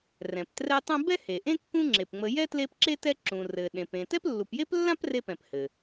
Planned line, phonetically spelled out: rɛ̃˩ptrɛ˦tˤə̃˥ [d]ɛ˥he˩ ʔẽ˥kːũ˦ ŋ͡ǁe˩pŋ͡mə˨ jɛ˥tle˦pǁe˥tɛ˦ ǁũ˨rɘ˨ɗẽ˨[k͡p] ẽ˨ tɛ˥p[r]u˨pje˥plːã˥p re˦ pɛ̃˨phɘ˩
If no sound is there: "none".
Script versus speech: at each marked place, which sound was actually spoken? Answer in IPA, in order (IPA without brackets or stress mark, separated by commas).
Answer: b, p, lː